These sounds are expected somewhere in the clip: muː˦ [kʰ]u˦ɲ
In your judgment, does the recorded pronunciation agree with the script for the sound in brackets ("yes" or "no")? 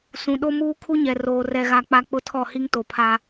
yes